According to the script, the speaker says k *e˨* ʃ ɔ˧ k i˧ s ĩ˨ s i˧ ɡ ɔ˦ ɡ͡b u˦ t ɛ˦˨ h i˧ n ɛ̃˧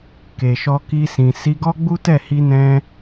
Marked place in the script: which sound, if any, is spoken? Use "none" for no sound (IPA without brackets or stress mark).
e˨